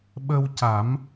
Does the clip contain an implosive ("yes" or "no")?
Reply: yes